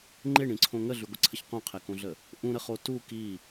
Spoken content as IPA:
ŋ͡ǃ e ɳ ĩ ǀʰ õ ŋ ə ɮ ʉ ɡʷ ə ǀʰ ə ç q õ qʰ ɛ k õ ɮ ə | ʔ ũ ɾ ə χ o t u k i

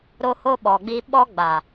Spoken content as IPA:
ɾ o˦ h o˦ ɓ ɔ˨ ɡ͡b i˦ ɓ ɔ˦ ɡ͡b a˨

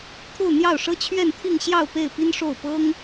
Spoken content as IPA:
t̪ʰ o˥˧ ʊ̯ n̪ j ɑ˥˩ ʊ̯ ʂ ɤ˥ t͡ɕʰ ɥ ɛ˥˧ n t̪ʰ i˥˧ ŋ ɕ j ɑ˥˧ ʊ̯ p e˥˩ ɪ̯ p i˥ n ʂ o˥˩ ʊ̯ p ɤ˥ ŋ

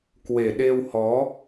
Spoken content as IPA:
k w e˨˩ ɗ e˧ w h ɔ˨˦

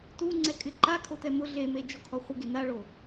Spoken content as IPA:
t u ŋ͡ǀ ɛ kʼ ɪ ǃ a kʰ o t ɛ m ʊ ɮ e m e d͡ʒ ɔ kʰ ɔ χʷ ɪ ɡ e n a ɭ o

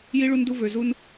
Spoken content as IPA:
j i˦ ɭ u˦ n d u˦ v ø˨ z u˦ n

